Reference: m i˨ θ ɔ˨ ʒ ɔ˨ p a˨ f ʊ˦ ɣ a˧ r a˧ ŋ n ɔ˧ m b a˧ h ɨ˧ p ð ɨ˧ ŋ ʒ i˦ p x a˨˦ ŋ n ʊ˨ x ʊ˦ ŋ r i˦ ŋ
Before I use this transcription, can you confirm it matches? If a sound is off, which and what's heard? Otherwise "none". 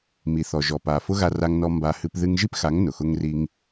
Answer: none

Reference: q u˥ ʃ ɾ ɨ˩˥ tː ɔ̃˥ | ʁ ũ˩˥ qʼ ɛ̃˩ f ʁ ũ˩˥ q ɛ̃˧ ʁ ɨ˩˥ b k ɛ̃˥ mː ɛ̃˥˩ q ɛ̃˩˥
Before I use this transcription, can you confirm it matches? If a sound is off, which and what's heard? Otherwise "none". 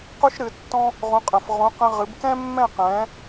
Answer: none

